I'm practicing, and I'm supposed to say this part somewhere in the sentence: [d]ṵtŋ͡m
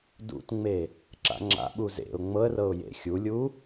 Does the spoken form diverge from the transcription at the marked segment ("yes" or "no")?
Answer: no